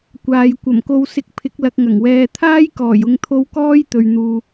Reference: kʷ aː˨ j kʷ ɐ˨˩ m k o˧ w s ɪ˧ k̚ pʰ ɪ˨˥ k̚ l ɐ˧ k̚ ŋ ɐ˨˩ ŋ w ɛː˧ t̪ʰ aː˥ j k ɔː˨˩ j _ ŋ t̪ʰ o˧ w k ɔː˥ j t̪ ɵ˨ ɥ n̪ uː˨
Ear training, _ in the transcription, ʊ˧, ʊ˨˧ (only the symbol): ʊ˧